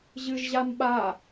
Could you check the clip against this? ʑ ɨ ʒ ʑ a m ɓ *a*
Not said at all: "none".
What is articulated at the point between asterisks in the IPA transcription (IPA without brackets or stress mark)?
a